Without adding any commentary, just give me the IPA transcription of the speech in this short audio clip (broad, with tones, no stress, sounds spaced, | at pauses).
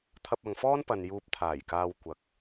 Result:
t̪ʰ ɐ˧ p̚ ɐ˨ ŋ f ɔː˥ n p ɐ˨ n j uː˧ p̚ t̪ʰ aː˨˩ j k aː˧ w kʷ ɐ˨˥ k̚